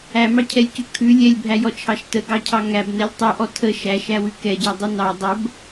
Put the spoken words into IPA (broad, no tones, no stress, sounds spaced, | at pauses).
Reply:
æ m ɑ cʰ ɛ lʲ c ʉ kʰ ʉ lʲ ɛ lʲ bʱ æ j ɔ t͡ʃʰ ɑ ʃ t ə ɡ ɑ cʰ ɑ ŋ æ b n ɛ lʲ tˤ ʉ ʔ ɔ tʰ ə ʃ æ ʃ æ w ʉ k ɛ ɟ æ dˤ ʉ n ɑ dˤ ə b